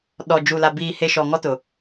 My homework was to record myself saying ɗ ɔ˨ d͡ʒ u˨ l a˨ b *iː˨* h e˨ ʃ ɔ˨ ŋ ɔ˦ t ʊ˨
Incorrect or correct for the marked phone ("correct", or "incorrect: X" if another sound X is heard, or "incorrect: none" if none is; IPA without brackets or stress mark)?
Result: correct